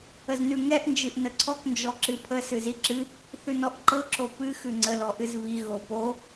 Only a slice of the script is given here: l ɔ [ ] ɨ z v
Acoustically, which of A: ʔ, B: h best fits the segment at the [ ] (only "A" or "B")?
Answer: A